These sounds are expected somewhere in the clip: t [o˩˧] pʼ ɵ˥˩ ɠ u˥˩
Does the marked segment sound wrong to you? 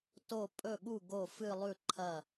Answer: yes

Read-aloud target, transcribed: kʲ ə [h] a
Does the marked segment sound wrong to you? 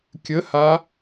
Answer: no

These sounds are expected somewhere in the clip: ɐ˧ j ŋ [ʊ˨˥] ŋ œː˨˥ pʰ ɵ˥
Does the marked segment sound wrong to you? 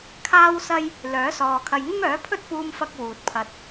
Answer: yes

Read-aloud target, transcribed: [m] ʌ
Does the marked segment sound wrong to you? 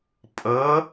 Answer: yes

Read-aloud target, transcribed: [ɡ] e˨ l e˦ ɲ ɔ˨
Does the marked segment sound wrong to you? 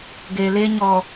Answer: no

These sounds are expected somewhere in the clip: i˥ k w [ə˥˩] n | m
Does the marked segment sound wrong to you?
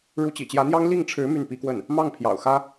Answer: no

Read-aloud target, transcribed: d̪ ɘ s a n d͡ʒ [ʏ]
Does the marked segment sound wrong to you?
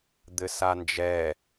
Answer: yes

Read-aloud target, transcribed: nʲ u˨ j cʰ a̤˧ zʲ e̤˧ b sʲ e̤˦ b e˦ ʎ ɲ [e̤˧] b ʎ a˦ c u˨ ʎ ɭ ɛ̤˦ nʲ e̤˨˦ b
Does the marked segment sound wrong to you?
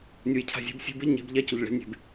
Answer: yes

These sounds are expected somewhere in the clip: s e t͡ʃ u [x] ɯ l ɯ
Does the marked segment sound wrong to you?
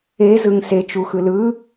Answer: no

